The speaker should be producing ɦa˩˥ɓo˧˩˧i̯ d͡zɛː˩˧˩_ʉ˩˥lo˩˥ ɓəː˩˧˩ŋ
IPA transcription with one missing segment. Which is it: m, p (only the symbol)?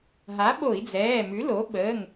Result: m